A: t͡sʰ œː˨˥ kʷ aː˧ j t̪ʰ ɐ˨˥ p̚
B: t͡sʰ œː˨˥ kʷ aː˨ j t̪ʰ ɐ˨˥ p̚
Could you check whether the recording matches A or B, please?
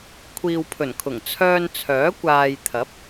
B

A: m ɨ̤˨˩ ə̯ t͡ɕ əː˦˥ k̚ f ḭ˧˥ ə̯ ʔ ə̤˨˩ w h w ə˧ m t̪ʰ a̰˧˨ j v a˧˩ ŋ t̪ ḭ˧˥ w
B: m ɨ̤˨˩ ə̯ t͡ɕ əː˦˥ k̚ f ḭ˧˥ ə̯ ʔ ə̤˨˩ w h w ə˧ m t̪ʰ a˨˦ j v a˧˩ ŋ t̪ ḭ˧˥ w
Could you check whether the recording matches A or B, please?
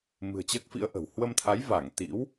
B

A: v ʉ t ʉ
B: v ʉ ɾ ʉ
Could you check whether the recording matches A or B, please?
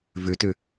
A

